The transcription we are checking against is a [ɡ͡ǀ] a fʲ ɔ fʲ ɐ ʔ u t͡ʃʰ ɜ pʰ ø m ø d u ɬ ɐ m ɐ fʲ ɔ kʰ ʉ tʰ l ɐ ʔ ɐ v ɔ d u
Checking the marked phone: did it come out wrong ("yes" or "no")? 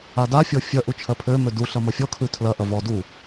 yes